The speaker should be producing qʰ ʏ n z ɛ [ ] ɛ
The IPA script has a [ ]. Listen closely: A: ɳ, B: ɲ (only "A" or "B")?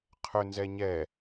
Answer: B